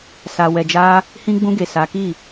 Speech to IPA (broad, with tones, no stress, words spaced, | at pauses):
sa˨wɛ˨d͡ʒa˧ | hĩ˧ɡ͡bũ˧ɡe˨ sa˨˦ki˦˨